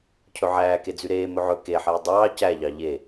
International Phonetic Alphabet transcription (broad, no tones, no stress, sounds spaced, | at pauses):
cʰ ɵ ʕ æː k e d͡z y ɾ eː m ɵ ʕ ɵ k e ħ ɛː dˤ ɑː c æ ʎ ɑ ʎ e